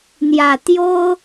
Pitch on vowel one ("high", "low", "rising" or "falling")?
low